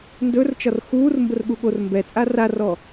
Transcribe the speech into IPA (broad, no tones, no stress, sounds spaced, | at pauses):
n d ɵ r t͡ʃ ɒ r x uː r m b ə r ɠ u ɠ o r m b ɛ t͡sʼ a r a r ɔ